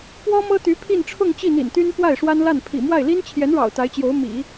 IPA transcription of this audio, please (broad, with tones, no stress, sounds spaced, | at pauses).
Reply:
p w ɔ˥ m ɤ˥ t̪ y˧˥ pʰ i˥˧ n ʈ͡ʂʰ ʊ˥˧ ŋ t͡ɕ i˥˩ n̪ ḭ˨˩ n t̪ y˥ n p w a˥˩ ɪ̯ ʂ w a˥ n l a˥˩ n pʰ ḭ˨˩ m w a˥˩ ɪ̯ l i˥ n t͡ɕʰ j ɛ˧˥ n ɻ ɑ̰˨˩ ʊ̯ t̪ a˧˥ ɪ̯ t͡ɕ j o˧˥ ʊ̯ m ḭ˨˩˦